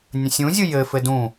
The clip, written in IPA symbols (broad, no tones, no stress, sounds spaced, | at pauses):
nʲ ə̃ sʲ ũ zʲ ɯ j ɘ f ɘ d ũ